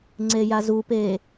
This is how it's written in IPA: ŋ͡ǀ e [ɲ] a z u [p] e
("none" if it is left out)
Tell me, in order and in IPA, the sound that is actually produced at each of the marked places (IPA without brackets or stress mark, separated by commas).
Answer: j, p